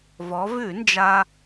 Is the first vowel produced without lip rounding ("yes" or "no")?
no